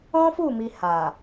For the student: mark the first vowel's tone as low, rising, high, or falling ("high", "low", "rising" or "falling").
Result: high